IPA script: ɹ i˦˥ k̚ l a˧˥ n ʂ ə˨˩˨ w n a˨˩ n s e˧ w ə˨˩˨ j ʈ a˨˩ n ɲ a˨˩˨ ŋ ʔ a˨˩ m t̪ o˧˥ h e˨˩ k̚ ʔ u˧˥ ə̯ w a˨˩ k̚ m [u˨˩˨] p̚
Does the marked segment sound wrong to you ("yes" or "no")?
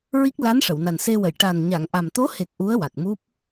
yes